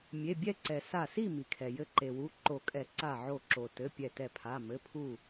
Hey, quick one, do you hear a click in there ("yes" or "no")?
yes